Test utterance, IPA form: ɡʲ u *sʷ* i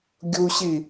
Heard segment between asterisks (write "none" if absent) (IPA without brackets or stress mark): ɕ